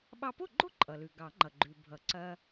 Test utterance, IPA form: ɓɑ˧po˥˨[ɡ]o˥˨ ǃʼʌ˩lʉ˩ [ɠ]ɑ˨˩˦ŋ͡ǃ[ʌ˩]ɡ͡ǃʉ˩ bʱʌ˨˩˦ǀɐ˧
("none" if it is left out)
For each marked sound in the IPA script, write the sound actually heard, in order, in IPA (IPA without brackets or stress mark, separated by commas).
ɡ͡ǃ, ɡ, ʌ˩